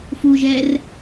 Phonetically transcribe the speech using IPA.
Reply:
fu ʒɛr

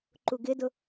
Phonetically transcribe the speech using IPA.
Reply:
ǃuɡɪdʊ

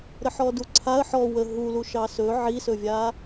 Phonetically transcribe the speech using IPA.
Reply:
ɾəħɔduǀʰaə̯ ħɔ wə ɦulu ʃɑsɵ ʕisɵvʲa

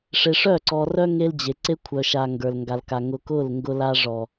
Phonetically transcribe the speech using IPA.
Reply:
ʂe˨ʂœ˦˨ǀɔ˨rœ˦ ŋe˦ld͡ʑe˨ ǀe˦kʷʰœ˨ʃa˨ ŋɡə˞˨l ŋɡa˨lka˨ ŋʊ˨ kʊ˦˨l ŋɡʊ˦la˦ ʐɔ˨

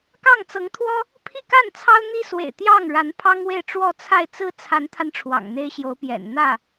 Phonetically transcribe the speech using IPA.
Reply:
kɑ˥˩ŋt͡sɤ˧˥ŋt̪ʰwɔ˥ | pʰi˥˧ka˥˩n t͡sʰɑ˥ʊ̯n̪i˥ swḛ˨˩ɪ̯t̪jɑ˥˩ŋɻa˧˥n pʰɑ˥ŋwe˥˧ɪ̯ ʈ͡ʂwɔ˥˧t͡sʰa˥˧ɪ̯ t͡sɹ̩˥˩t͡sʰa˧˥nt̪ʰa˧n ʈ͡ʂʰwɑ̰˨˩ŋn̪e˥ɪ̯ɕjo˧˥ʊ̯pjɛ̰˨˩n n̪ä˥˩

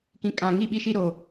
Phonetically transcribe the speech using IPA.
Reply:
kĩ˨ kʼã˨ŋi˦˨ɓi˦ʃi˦ ɾo˦

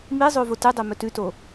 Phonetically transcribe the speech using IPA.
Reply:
mizˤo votɨdˤe mɵtʉto

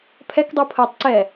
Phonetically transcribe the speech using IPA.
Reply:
pʰɛkdˤupʰəːtˤ ǀɛ

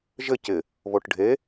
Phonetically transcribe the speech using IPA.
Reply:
ʒɘ cɪ | βoʈɖʱe

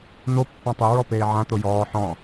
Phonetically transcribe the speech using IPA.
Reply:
n̪o pːãtˤeɹɔ peːʕã t̪ojɔː ħɔ̃

